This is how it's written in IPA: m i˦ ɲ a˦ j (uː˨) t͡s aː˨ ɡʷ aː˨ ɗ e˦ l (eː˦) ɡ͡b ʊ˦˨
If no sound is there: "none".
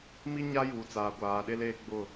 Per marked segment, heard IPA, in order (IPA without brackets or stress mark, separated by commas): uː˨, eː˦